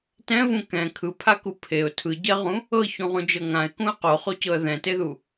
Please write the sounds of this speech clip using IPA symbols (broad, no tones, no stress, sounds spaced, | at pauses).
t ɛ̃ v ũ k ɛ̃ kʰ ɯ pʰ a k u pʰ e ʊ̯ tʰ ɯ ɟ ɛ ʁ ũ | ɤ ç ũ ʁ ũ d͡ʒ ɤ ŋ ã ɪ̯ k ũ ə̯ q o χ o c ɤ ə̯ ð ɛ̃ t e ð u